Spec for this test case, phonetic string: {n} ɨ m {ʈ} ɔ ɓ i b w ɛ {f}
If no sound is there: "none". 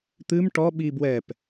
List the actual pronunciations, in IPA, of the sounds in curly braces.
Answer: t̪, ʈ, p

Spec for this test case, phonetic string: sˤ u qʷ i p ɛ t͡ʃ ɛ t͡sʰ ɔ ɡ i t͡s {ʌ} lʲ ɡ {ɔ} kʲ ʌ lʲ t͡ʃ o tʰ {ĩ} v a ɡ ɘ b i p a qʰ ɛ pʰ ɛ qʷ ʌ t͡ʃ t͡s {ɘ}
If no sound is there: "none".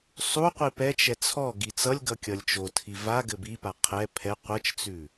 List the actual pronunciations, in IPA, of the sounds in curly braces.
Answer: ʌ, ʌ, i, ʉ

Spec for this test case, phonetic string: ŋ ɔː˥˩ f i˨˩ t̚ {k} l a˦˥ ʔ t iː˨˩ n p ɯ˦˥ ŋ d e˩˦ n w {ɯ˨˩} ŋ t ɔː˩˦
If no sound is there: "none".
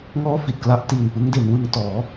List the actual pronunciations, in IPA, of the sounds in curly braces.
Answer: k, ɯ˧

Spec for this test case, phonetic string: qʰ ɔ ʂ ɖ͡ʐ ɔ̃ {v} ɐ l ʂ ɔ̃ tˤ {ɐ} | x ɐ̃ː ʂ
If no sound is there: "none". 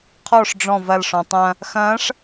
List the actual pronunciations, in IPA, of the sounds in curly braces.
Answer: v, ɐ̃

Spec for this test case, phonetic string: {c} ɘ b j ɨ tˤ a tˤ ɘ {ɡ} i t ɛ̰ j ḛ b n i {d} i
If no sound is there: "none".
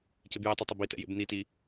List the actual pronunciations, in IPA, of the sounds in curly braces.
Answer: c, b, t

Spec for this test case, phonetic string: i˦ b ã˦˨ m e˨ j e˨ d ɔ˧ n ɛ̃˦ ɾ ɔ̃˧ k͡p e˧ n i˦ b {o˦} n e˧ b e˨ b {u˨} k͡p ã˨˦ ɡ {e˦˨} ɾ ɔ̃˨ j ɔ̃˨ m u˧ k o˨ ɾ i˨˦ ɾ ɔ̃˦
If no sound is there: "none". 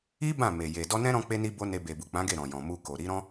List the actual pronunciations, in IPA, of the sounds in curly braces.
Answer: o˦, u˨, e˦˨

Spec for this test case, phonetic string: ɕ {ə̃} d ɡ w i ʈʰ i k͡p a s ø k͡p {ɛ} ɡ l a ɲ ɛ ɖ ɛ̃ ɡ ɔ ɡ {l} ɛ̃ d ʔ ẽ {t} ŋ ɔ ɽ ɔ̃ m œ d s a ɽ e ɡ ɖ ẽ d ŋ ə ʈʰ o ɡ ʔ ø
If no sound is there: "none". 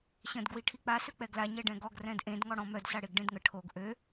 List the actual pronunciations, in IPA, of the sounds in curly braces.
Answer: ə̃, ɛ, r, d

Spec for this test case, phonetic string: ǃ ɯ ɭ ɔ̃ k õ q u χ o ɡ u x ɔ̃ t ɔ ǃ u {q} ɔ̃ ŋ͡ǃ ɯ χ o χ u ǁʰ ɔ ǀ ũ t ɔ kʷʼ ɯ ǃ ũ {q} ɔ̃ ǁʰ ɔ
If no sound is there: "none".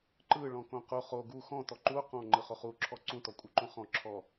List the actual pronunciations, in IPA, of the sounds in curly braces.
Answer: q, χ

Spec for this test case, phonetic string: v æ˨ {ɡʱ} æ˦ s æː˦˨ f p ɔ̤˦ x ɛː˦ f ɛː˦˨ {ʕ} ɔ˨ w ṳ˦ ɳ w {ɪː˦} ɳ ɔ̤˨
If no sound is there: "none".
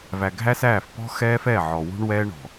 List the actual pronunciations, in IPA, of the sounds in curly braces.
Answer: ɡʱ, ʕ, ɛː˦

